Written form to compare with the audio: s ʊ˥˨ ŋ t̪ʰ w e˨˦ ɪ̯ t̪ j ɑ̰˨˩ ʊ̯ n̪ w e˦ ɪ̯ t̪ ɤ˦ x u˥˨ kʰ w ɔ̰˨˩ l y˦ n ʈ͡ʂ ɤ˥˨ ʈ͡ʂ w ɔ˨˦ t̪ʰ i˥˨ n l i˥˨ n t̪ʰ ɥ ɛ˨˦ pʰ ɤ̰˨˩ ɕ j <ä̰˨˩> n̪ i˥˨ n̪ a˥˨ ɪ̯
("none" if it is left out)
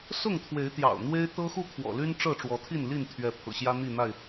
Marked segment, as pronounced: ä˦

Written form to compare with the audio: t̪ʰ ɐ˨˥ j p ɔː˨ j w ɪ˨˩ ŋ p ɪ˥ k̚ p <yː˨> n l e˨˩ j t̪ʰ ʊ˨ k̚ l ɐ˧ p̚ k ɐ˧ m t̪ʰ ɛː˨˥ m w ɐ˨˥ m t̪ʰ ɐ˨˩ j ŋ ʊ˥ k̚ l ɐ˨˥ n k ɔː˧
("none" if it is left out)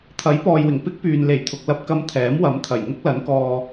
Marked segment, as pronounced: yː˨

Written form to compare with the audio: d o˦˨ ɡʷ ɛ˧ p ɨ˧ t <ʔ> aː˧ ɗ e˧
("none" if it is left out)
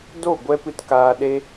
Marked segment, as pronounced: k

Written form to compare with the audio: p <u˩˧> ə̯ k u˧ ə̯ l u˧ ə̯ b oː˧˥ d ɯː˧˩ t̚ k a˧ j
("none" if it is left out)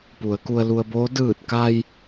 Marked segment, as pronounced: u˩˧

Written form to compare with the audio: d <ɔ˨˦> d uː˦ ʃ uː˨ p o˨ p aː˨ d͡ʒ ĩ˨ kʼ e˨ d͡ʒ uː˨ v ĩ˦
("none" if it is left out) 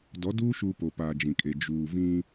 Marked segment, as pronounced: ɔ˨˦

